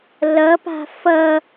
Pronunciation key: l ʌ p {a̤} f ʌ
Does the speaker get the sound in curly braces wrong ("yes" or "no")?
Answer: no